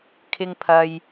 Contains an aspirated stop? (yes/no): yes